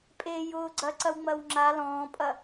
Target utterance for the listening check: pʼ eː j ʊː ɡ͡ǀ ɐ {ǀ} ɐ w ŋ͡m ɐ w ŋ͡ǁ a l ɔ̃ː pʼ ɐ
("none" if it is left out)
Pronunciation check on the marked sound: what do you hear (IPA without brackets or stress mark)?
ǀ